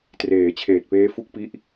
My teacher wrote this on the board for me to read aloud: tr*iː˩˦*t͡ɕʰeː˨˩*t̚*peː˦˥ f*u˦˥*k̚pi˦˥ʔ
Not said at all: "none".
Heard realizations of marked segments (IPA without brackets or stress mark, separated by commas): eː˩˦, t̚, u˦˥